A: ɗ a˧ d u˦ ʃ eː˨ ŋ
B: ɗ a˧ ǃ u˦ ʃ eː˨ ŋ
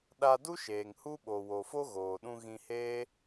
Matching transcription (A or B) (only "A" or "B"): A